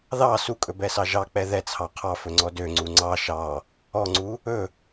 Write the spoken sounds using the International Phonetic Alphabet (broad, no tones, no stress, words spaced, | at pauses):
ðɑ sukʼɵbɛsɑ ʒɑk͡pɛ ðɛt͡sʰɑ qʰɑfɵŋ͡ǀɔ døŋ͡ǀu ŋ͡ǀɑ ʃɑ | ɔŋ͡ǀu | ɵ